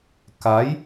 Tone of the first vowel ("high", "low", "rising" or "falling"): rising